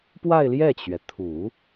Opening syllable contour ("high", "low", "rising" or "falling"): falling